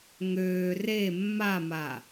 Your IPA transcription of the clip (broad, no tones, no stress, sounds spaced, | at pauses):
ŋ øː r e mː a m a